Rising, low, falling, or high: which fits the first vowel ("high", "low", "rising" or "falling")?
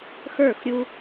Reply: falling